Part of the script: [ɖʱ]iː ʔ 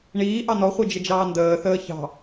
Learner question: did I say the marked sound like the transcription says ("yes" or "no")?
no